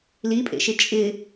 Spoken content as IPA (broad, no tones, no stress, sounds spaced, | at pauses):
l i pʼ ḛ ʃ ɪ t͡ʃʼ ɪ